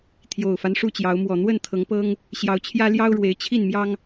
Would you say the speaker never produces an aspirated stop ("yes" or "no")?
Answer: no